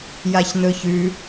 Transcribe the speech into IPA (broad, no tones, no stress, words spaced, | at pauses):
jaçnɵçʉ